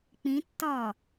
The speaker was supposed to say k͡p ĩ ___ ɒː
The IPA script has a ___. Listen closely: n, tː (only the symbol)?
tː